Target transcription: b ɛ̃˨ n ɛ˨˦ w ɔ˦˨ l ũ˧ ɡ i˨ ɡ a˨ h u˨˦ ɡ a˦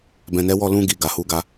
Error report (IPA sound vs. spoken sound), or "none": none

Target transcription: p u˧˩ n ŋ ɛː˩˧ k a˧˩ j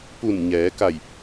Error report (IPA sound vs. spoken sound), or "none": ŋ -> ɲ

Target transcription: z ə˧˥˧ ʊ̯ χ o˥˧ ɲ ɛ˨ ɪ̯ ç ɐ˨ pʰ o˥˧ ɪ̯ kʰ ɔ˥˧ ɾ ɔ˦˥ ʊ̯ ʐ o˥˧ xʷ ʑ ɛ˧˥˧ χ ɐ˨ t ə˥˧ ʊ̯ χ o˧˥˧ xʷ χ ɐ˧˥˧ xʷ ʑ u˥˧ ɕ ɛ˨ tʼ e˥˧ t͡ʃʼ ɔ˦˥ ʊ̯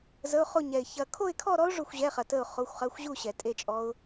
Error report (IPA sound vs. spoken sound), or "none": pʰ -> kʰ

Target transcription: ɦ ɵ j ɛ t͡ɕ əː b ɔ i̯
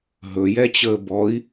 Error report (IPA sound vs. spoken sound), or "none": none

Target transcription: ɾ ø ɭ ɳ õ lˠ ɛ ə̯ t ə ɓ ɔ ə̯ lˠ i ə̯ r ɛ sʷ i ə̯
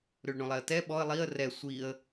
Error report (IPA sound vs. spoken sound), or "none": ə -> ɛ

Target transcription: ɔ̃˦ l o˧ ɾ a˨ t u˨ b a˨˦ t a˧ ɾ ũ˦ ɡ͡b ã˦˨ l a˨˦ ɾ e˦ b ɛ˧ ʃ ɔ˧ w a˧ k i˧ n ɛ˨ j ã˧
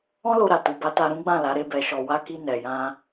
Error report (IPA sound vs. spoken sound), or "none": none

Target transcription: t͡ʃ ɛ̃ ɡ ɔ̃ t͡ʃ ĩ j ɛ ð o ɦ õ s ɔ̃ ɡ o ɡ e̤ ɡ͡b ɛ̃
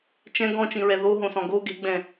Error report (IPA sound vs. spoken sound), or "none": j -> ɹ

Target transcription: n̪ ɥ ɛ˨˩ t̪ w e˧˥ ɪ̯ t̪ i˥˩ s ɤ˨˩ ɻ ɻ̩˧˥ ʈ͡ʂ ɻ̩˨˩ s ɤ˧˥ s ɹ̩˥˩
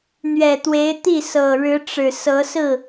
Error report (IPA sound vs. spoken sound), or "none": none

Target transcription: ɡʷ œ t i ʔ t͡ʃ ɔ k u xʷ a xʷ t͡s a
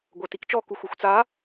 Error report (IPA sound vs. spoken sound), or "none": ʔ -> k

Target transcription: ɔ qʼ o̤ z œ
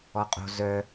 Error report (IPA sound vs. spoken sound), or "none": none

